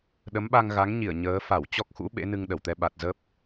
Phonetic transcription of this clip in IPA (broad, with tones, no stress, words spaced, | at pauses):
ɗə˨˦mɓa˧ŋɣa˨˦ŋɲi˧˩ə̯ ɲəː˨˦ fa˧˩wt͡ɕɔ˦˥k̚xṵ˧˥ ɓḛ˧˥ nɨ˧ŋɗə˧˩wt̪ɛ˧ ɓa˨˩t̚zə˦˥p̚